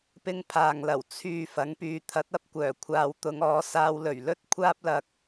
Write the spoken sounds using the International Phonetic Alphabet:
p ɪ˥ ŋ pʰ aː˨ ŋ l ɐ˨˩ w t͡sʰ yː˨ f ɐ˨˥ ŋ p yː˨˧ t̪ʰ ɐ˨˥ t̚ ɐ˥ p̚ kʷ œː˨˩ kʷʰ aː˨˧ w t̪ ʊ˨˧ ŋ ɔː˨˧ s aː˧ w l ɵ˨˩ ɥ l ɵ˥ t̚ kʷʰ aː˥ p̚ l ɐ˨ k̚

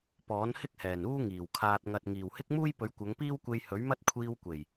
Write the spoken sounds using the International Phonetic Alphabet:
p ɔː˨˥ n h ɪ˥ k̚ h ɛː˨˩ n uː˥ ŋ iː˨˩ w kʰ aː˨ t̚ ŋ ɐ˨ t̚ ŋ iː˨˩ w h ɪ˥ k̚ m uː˥ j p ɵ˨˥ ɥ kʷ ɐ˨˧ ŋ p iː˥ w kʷ e˧ j h ɵ˨˥ ɥ m ɐ˥ t̚ kʷʰ iː˧ w kʷ e˨˩ j

